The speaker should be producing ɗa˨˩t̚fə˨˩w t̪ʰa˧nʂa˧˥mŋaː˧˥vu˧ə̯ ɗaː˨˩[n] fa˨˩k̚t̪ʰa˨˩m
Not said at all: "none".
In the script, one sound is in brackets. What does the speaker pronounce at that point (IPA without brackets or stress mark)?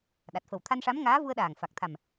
ŋ